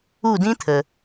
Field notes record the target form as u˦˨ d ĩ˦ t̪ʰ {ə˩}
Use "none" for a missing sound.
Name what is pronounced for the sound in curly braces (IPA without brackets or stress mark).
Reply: ə˩